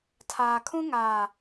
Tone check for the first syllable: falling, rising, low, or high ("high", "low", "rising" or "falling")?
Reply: low